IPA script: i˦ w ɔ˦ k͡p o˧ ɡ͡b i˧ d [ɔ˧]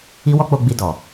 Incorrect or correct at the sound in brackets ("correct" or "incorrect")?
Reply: incorrect